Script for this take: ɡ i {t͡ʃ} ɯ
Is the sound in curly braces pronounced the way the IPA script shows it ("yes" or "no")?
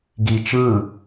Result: yes